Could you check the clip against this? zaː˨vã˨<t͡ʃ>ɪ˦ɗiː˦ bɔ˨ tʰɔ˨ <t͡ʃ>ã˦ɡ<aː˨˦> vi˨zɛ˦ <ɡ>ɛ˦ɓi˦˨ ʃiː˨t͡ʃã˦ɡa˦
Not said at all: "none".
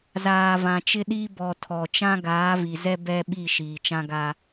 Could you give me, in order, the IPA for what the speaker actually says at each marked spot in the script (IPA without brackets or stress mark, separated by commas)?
t͡ʃ, t͡ʃ, aː˨˦, b